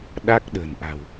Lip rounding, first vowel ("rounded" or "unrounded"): unrounded